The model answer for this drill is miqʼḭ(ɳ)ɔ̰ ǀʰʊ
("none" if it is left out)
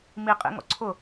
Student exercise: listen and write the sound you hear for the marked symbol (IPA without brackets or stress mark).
ŋ